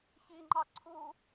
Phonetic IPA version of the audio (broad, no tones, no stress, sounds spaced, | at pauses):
ç i ŋ͡ǃ ɑ ǀʰ u